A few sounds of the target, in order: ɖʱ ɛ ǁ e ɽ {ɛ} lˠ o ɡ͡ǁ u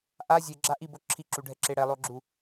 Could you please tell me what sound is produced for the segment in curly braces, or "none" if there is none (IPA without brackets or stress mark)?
ɛ